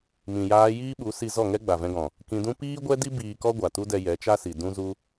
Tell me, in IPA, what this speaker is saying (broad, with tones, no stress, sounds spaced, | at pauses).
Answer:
m ĩ˨ j aː˧ j iː˦ ɓ u˨˦ s i˧ z ɔ˦˨ ŋ ɛ˦ ɡ͡b a˨ v ɛ̃˧ ɡ ɔ̃˨ | k ĩ˧ d ũ˦ p iː˦ ɡʷ ɛ˦ d i˦ b iː˧ k ɔ˦ ɡʷ a˨ t u˦ d ɛ˧ j ɛ˨˦ t͡ʃ a˦ s i˨ d ũ˦ z u˦